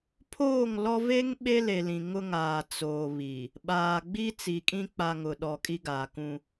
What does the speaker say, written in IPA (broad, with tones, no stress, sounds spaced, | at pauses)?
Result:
pʰ oː˦˨ ŋ l ɔ˦ v e˦ ŋ ɓ e˦ l e˨ l ĩ˨ ŋ ʊ˦ ŋ aː˨ t͡s oː˨ β i˨ | ɓ aː˨ ɡ͡b i˦ t͡s i˨ kʼ ĩ˦ k͡p a˨ ŋ ʊ˨ ɗ ɔ˨ kʼ i˦ ɡ aː˨ k ũ˦